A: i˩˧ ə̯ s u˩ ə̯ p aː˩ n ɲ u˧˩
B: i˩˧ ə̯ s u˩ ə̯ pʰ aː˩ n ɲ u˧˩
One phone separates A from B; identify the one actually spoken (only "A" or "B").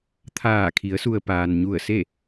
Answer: A